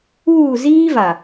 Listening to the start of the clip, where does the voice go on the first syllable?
falling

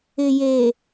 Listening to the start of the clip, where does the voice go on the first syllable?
low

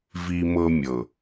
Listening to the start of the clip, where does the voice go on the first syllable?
high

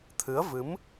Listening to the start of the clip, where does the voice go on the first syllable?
rising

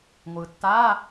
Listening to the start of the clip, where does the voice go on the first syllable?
low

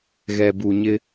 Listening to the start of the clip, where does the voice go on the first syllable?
low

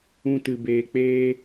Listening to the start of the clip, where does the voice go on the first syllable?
high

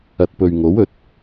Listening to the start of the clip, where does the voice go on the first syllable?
low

